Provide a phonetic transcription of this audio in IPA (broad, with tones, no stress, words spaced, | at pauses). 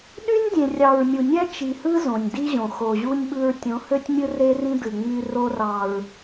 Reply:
ɗy˦nʲ dʲẽ˨rʲɑ˨ɹmʲu˨nʲæ˦ t͡ʃi˨hɯ˦ zõ˨nʲdi˦ʑõ˨ xo˨ʑu˦nʲɓɯ˦ɹ tʲõ˨˦hø˦tʲmʲɯ˦ re˦rĩ˦dɯ˨ ŋ͡my˦ ro˦rɑ˨ɹ